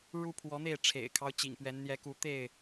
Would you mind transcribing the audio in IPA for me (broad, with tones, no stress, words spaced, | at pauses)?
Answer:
ɻu˦pʰwɔ˨˦n̪e˥˨ɪ̯ ʈ͡ʂʰḛ˨˩ɪ̯kʰɑ˦ʊ̯ t͡ɕḭ˨˩ŋpɥɛ˨˦n n̪jɛ˨˦ku˨˦t̪e˥˨ɪ̯